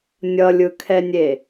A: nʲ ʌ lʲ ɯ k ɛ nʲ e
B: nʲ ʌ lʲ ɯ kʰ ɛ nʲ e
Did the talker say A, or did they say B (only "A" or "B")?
B